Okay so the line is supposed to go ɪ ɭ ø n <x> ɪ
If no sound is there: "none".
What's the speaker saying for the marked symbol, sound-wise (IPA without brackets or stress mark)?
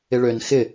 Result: x